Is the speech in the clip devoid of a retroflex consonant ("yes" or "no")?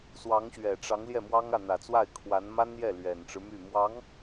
no